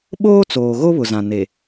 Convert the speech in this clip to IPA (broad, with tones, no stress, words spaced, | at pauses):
ɓoː˦t͡soː˨ ɣo˦βʊ˨zã˨ ne˨